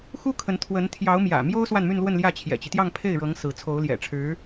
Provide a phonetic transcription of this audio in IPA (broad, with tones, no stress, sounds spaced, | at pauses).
x u˥ kʰ ə˧˥ n t̪ʰ w ə˧˥ n t̪ʰ j ɑ˧˥ ʊ̯ m j ä̰˨˩ m j o˥ ʊ̯ s w a˥˧ n m y˥˧ n l w ə˥˧ n l j ä˥˩ t͡ɕʰ j ɛ̰˨˩ t͡ɕ i˦ t̪ j ɑ˥˧ ŋ pʰ e˥˩ ɪ̯ ɻ ɤ˧˥ ŋ s ɹ̩˧˥ t͡sʰ o˧˥ ʊ̯ l j ɛ̰˨˩ ʈ͡ʂʰ ɻ̩˧˥